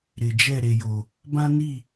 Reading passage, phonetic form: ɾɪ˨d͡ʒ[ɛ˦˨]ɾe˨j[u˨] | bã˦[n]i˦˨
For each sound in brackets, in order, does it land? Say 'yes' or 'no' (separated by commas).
yes, no, yes